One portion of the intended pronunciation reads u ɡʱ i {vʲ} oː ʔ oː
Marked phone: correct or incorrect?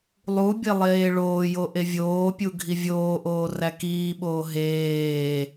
correct